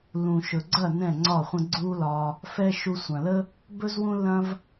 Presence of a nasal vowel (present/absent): present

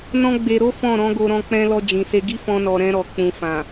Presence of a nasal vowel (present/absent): present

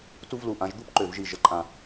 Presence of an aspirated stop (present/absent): absent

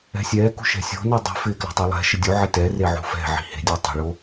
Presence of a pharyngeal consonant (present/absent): present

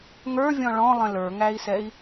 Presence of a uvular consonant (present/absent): absent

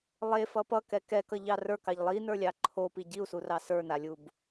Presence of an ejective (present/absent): absent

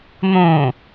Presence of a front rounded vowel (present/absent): absent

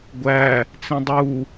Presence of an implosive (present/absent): absent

